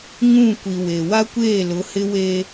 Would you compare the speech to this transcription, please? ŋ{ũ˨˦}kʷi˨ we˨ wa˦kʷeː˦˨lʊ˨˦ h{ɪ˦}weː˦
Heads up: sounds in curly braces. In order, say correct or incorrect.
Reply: incorrect: ũ˦˨, correct

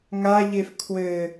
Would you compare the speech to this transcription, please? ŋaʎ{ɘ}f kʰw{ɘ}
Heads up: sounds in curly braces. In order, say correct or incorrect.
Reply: incorrect: e, correct

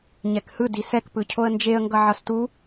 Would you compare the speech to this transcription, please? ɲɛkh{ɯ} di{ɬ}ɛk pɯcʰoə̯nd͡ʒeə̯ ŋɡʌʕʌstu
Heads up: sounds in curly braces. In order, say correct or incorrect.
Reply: correct, incorrect: s

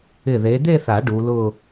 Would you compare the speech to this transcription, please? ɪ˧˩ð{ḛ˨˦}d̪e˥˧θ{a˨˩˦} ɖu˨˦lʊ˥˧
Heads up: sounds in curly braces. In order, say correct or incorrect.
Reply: incorrect: e˨˦, correct

